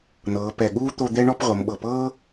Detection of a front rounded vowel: absent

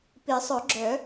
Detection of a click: present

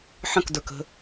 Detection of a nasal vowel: present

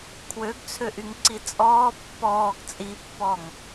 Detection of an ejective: present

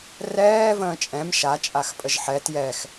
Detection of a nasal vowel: present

